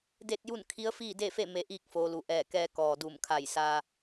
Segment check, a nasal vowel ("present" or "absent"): absent